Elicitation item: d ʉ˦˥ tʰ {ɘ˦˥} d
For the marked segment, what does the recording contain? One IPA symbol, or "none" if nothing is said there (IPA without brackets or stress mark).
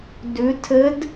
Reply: ɘ˦˥